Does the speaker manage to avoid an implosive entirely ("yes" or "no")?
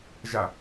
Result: yes